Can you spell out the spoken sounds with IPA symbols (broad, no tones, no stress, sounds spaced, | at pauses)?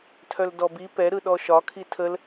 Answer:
tʰ œ l d ɔ b i p ɛ ɾ ɯ ɗ ɔ ʃ ɒ kʰ i tʰ ə l